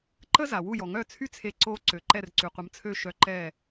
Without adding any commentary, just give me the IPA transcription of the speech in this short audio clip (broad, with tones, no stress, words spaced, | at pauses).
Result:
ǃə˥ za˩wu˥˩jɔ˩ ŋœ˥˩t͡sʰy˥t͡sʰe˧ ǀo˧ ǀø˩ǃɛ˥˩rǀy˩ qʷə˩˥mt͡sʰø˥˩ ʃœ˧ǃɛ˥˩